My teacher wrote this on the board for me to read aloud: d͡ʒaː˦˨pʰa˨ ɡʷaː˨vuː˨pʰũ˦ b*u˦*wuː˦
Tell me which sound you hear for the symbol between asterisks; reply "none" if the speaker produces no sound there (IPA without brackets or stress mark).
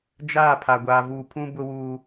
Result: ʊ˦